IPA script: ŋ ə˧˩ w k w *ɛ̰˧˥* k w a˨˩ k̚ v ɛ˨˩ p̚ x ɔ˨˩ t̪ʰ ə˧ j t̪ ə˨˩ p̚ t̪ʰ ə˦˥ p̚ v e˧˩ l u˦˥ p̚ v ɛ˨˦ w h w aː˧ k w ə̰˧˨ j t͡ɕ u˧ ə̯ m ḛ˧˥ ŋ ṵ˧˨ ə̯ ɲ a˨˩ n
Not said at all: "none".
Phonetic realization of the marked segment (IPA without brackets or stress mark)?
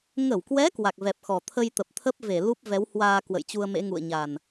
ɛ˨˦